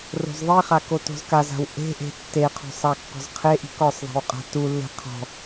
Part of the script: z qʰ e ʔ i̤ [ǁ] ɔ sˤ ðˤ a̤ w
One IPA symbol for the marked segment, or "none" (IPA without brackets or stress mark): k